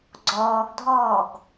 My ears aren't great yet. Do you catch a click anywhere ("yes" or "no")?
yes